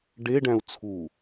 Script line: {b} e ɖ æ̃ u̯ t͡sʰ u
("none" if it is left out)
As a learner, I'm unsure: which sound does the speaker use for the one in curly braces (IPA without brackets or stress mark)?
ɖ